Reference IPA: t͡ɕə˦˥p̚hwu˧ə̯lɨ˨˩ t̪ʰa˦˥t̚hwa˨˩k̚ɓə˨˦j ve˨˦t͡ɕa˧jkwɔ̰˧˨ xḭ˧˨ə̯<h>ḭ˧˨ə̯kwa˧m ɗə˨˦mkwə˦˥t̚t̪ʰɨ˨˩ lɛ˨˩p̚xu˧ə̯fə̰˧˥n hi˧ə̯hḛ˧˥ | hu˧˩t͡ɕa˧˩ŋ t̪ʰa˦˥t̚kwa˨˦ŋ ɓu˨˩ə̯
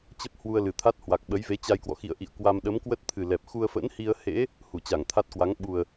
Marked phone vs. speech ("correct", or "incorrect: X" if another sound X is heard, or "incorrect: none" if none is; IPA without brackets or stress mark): incorrect: ʔ